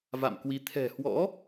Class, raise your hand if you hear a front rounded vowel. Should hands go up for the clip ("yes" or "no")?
no